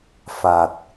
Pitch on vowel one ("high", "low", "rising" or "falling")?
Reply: low